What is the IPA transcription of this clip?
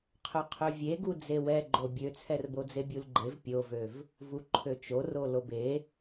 qʰøqʰøvʲeɡu d͡zewɛɡ͡ǃo bʲøt͡sʰɛr bod͡zebʲulɡ͡ǃev pʲovøv | vuǃʰøt͡ʃoro lobe

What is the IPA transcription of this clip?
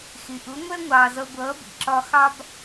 xɪ˩ʔʊ˩˥ŋʷɛ˥ ŋʷɑː˩zʌ˧ ɡʷʌː˩˥bḭ˩ǁɒ˧ xɑ˥b

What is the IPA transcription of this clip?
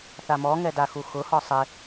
θamɔŋɛ daxuxʊhɔ sˤɪ

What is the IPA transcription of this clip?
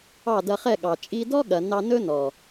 ɑ˦˨dɐ˧χɛ˦˨ɠɑ˨ t͡ʃʼi˧dɔ˦ɠɐ˨ nɑ˧nɵ˦ nɔ˨

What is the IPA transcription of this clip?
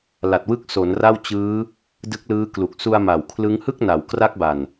la˨˩t̚wɯ˦˥k̚ so˩˦n ra˥˩w t͡ɕɯː˦˥ | dɯ˦˥k̚lɯː˦˥klu˨˩k̚ su˧a̯ ma˨˩wkʰlɯ˦˥ŋ hɯ˥˩k̚na˩˦wkra˦˥k̚ba˨˩n

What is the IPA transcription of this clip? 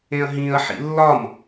ẽɐ̯ɦĩɐ̯ħḭ lːɒm

